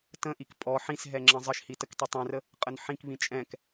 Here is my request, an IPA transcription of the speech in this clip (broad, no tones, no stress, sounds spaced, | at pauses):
t ə̃ ʔ i k pʼ ɔ ħ ĩ s ɦ ɛ ŋ͡ǁ ə̃ zˤ ə ʃ h i t ə k t i tˤ ĩ r ə | qʼ ə n ħ ĩ k β ĩ t͡ʃʼ ɛ̃ k